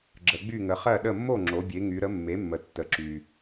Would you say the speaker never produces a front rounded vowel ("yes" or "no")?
no